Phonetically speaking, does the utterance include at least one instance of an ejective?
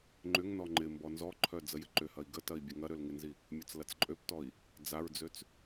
yes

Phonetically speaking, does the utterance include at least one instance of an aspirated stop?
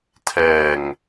yes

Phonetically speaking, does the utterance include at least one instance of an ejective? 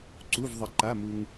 no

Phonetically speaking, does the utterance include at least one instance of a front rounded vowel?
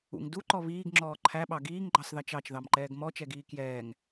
no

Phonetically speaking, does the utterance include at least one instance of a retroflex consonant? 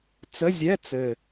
no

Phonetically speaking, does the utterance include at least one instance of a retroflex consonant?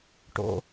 yes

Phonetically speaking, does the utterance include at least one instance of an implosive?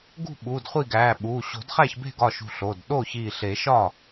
yes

